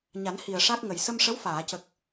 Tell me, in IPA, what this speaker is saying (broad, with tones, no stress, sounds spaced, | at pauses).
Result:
ɲ a˨˩˦ n h i˨˩ ə̯ ʂ a˦˥ k̚ ŋ ə˨˩ j s ə˧ m ʂ ə˧˥ w f aː˨˩˨ c ə˨˩ k̚